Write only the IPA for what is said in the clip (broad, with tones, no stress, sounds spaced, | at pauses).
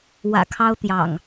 w ä̰˨˩ kʰ ɑ˦ ʊ̯ t̪ j ɑ̰˨˩ ŋ